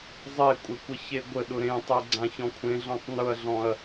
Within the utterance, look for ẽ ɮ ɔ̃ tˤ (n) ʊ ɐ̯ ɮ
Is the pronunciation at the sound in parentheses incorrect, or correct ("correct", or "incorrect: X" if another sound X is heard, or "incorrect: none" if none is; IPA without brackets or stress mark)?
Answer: correct